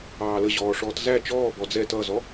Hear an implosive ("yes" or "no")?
no